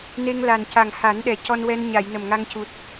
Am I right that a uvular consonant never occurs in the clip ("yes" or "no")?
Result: yes